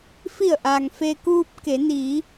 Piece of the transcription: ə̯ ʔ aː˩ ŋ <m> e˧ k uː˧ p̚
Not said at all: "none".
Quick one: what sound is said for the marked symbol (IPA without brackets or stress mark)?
f